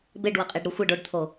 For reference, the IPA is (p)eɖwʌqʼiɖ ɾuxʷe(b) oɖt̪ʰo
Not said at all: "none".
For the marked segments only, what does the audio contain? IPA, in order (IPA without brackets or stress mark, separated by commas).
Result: b, ɖ